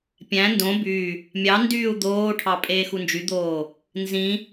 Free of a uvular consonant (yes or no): yes